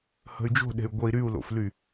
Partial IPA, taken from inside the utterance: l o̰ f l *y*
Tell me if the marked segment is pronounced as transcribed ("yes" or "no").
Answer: yes